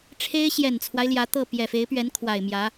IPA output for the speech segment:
ʈ͡ʂʰ e˥ ɪ̯ ɕ j ɛ˨˩ n t͡sʰ w a˦ ɪ̯ l j ä˧˥ t̪ ɤ˥˩ p j ɛ˨˩ f e˧˥ ɪ̯ p ɥ ɛ˧˥ n kʰ w a˨˩ ɪ̯ m j ä˧˥

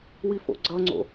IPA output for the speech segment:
w i f o̰ ɡ͡ǀ ʌ ŋ͡ǀ o̰

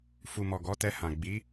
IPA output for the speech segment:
f u˨ m ɔ˨ ɡ ɔ˨˦ t ɛ˧ h ã˨ ɡ͡b i˨˦

